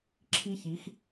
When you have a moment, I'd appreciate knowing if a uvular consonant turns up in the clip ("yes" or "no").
no